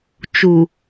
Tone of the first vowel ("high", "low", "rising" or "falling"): low